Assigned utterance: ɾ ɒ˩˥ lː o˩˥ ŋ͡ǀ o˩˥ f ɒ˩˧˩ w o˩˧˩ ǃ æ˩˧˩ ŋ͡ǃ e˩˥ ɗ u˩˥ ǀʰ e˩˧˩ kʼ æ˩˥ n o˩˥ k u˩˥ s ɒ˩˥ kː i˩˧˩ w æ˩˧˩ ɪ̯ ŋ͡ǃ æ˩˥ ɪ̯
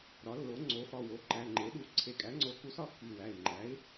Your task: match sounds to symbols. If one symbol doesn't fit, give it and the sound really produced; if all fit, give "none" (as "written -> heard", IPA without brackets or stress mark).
n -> ŋ͡ǀ